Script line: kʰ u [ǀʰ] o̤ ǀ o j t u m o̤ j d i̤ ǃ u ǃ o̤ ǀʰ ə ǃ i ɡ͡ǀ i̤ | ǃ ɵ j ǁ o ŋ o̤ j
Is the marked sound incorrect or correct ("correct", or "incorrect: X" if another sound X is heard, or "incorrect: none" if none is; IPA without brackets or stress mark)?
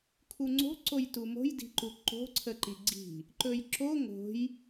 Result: incorrect: ŋ͡ǀ